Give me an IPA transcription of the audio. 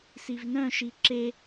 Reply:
s i v n œ̃ ʃ i ǁ e

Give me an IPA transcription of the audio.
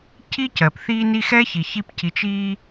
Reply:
cʰ i˥ c ɜ˩ p θ iː˦ n i˦ x ɛ˥ ç i˩ ç i˦ p c i˨ t͡ʃ i˦

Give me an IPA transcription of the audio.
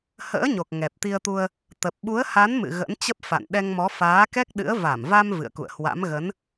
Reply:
h ə̰ː˧˥ ɲ o˨˩ k̚ ŋ ɛ˨˩ p̚ t̪ i˧ ə̯ t̪ u˧ ə̯ | t̪ ə˨˩ p̚ ɓ u˨˦ ə̯ h a˨˦ n m ɨ̰˧˨ ɣ ə̰˧˥ n t͡ɕ ə˦˥ p̚ f a̰˧˨ n ɗ ɛ˧ ŋ m ɔ˨˦ f aː˨˦ k ɛ˦˥ k̚ ɗ ɨ̰˧˥ ə̯ v a˧˩ m v a˧ m v ɨ̰˧˨ ə̯ k ṵ˧˨ ə̯ h w a̰˧˥ m ɣ ə˨˦ n

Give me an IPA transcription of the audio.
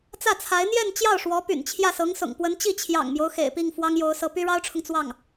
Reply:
t͡s ä˥˩ t͡sʰ a˧˥ ɪ̯ n̪ j ɛ˥˧ n t͡ɕ j ɑ˥˩ ʊ̯ ʂ w ɔ˧˥ p y̰˨˩ n t͡ɕʰ j ä˥˩ s ɤ˧˥ ŋ s ʊ̰˨˩ ŋ p w ə˧˥ n t͡ɕ i˥˩ t͡ɕʰ j ɑ̰˨˩ ŋ m j o˦ ʊ̯ x ḛ˨˩ ɪ̯ p i˥˩ ŋ f w ɑ˥ ŋ j o˧˥ ʊ̯ s ɤ˧˥ p y˥ ɻ ɑ˥ ʊ̯ ʈ͡ʂʰ ʊ˨ ŋ t͡s w ɑ˥˩ ŋ

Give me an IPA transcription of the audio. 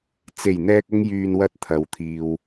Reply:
t͡s e˨˩ j n̪ ɛː˨ k̚ ʊ˧ ŋ j yː˨ n w ɐ˧ t̚ t̪ʰ ɐ˨ w t̪ʰ iː˧ w

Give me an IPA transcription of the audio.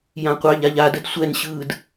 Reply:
j ã qʷ ɑ ʎ a ʎ a d ə d sʷ ɛ n ɕ ɯː d

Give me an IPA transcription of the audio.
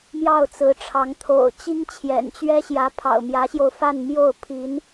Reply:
m j ɑ˥˩ ʊ̯ t͡s ɹ̩˧˥ ʈ͡ʂʰ ɑ˧˥ ŋ t̪ʰ o̰˨˩ ʊ̯ t͡ɕ i˥ ŋ t͡ɕʰ j ɛ̰˨˩ n t͡ɕ ɥ ɛ˥ ɕ j ä˧˥ pʰ ɑ̰˨˩ ʊ̯ m j ä˧˥ ɕ j o˧ ʊ̯ f a˥˧ n m j o˥˩ ʊ̯ pʰ i˧˥ n

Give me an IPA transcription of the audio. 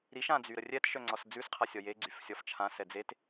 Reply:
ɾ i ʃ ã d͡z y ɾ ə rʲ ɛ t ʃ œ ŋ͡ǀ ɒ s d͡z ʉ s qʰ a sʲ ɒ j e ɡ͡ǀ y f sʲ ɒ f t͡ʃʰ ã s ɛ d͡z e t

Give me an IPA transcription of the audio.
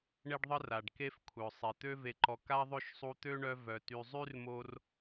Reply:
ɳ e˥ ɖ ðˤ ə˥ r a˩ ɖ k e˦ f kʷʰ œ˩ sˤ i˩ t̪ ø˦ v e˨ ǃ ɔ˨ k a˥ ðˤ ø˥ ʃ sˤ u˦ t̪ ø˥ ɳ œ˦ v œ˨ t y˨ zˤ y˥ r m o˦ r

